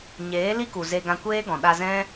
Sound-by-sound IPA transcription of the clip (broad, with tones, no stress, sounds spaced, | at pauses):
ɲ eː˨˦ l i˦ k u˨ z e˧ ɡ ã˧ kʷ eː˦ ɡ ɔ̃˨ ɗ a˧ z ɛ̃˦